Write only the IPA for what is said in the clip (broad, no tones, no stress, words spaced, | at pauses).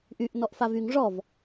ʔyʔ nɔʔfavyŋ ʐɔv